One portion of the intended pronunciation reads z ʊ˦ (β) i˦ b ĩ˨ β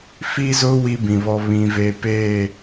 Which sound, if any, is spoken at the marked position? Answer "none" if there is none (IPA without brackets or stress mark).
w